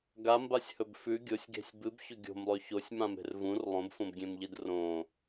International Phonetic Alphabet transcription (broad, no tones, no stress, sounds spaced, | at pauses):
ɡ a m b a sʲ h ɵ b f ʉ ɡʲ o sʲ ɡ e̤ sʲ b ɨ b ç ɵ ɡʲ o̤ m lˠ ʉ ç o sʲ m ã m e̤ r v ũ r lˠ õ b f õ b ɡʲ ẽ m ʎ i d r õ